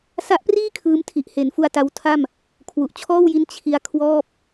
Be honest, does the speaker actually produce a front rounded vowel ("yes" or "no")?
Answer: no